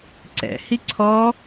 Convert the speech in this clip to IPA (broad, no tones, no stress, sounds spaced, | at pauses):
ǀ ɛ̰ h i ǀʰ ɔ